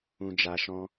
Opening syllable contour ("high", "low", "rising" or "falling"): low